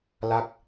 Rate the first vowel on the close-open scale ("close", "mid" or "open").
open